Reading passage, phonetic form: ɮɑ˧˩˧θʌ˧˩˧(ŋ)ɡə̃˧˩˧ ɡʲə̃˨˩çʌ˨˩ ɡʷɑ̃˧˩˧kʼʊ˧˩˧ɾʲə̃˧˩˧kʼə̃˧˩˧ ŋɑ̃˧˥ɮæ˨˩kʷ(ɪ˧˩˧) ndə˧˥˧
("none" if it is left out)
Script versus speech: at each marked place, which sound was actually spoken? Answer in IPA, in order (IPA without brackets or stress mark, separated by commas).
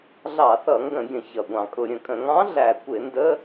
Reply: ŋ, ɪ˧˩˧